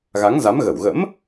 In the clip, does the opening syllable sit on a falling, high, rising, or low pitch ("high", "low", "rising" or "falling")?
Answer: rising